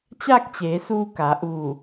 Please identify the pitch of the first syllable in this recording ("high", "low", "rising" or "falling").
falling